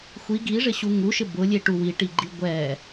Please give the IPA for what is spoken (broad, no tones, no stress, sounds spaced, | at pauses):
xʷ i ɡ i ʐ ɪ ɕ u ŋ u ʃ ɪ b ʊ lʲ e ʈ u w i ʈ i ɡ͡ǃ i ɡʷ ɛ